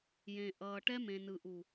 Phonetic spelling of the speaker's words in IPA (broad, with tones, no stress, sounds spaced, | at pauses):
j ẽ˨ ʔ ʌː˨ ʈ ɛ˦ m ẽ˨ n ɯ˨ ʔ u˨